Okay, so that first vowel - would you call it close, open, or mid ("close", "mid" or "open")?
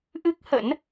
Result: close